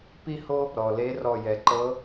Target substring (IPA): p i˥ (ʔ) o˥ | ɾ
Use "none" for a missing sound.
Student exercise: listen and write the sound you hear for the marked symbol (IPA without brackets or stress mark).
h